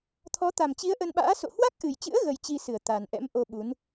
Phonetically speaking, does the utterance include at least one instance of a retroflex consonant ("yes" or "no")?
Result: no